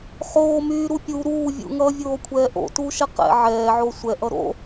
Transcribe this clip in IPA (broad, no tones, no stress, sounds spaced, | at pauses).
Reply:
χ oː m yː ɾ u pʲ u ɾ uː vʲ ṵ ŋ ʌː vʲ oː kʷʰ ɛː ʔ o̰ t uː ʃ ɛ q ɛ̰ ʕ ɛː ʕ o sʷ ɛ ʔ ʌ ɾ o̰